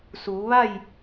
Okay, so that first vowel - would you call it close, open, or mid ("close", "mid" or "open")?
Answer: close